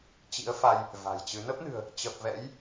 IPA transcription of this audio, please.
t͡ɕ ḭ˧˥ ə̯ f a˧ j | v a̤˨˩ j t͡ɕ ɨ˨˦ n ə˦˥ p̚ n ɨ̤˨˩ ə̯ | t͡ɕ ə˨˩ p̚ v ɛ̰˧˥ j

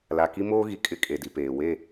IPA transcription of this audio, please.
l a˨ k i˦ m oː˦ ɣ i˨ kʼ ɪ˦ kʼ e˨ d i˨ p eː˨ w e˦˨

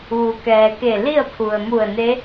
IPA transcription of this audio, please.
ʋ u˩ k ɛː˩ k e˧˩ l i˥˨ ə̯ pʰ u˩ ə̯ m u˧˩ ə̯ n e˧˥

